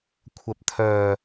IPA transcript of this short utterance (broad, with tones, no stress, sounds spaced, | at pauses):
kʷʰ ɐ˨ p̚ t̪ʰ œː˨